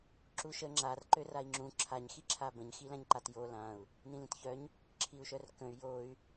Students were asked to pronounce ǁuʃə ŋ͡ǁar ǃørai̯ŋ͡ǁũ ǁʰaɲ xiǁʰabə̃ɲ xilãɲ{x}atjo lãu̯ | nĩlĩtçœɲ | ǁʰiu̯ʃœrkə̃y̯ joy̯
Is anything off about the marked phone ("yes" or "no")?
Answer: yes